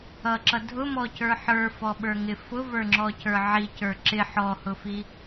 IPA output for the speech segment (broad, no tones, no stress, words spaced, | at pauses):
ʌǁʌ dʱʊmɔcə˞ ħə˞fɔɓə˞ŋɪ fʊvə˞ŋ͡ǁɔcə˞ ʕicə˞ ǁɪ ħɔhʊfi